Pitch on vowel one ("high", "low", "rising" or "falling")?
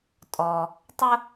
low